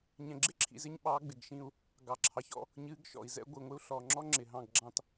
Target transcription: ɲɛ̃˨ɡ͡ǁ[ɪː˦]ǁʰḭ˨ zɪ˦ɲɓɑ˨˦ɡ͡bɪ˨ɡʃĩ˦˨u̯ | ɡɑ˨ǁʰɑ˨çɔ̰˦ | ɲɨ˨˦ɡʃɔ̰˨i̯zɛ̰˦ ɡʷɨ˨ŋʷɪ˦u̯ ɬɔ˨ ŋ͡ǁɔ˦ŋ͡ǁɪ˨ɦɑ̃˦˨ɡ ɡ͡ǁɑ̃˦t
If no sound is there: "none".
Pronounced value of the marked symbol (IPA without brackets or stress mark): ɪ˦